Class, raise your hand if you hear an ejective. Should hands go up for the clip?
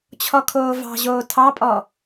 yes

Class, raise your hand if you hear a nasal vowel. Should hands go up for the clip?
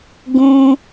yes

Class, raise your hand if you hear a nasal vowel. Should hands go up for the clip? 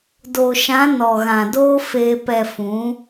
yes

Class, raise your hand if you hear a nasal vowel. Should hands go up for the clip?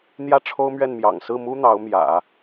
no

